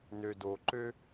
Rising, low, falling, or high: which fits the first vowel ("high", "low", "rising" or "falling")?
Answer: low